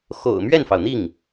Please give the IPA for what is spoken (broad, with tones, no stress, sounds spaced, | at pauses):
x o̰˨˩ ʊ̯ m ɥ ɛ˥˩ n f ɑ˩ ʊ̯ n̪ i˥˩ ŋ